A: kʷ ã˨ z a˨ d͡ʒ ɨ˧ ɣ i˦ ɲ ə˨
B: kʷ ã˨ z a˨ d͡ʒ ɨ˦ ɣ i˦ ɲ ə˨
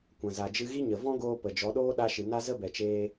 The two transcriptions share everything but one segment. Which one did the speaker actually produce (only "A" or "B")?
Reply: A